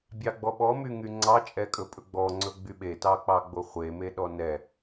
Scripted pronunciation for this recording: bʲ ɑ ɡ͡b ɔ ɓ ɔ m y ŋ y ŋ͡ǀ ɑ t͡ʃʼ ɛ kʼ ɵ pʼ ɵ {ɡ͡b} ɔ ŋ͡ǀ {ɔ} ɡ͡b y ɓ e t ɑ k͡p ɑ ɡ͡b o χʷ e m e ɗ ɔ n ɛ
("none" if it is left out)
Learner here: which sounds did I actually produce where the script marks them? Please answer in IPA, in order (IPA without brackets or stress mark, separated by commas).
ɡ͡b, ɵ